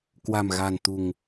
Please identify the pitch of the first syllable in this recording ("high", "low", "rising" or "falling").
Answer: low